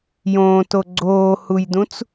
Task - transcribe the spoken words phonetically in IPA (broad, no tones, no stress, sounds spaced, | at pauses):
j õː t o ɡ͡ǀ oː h u j d ũ t͡s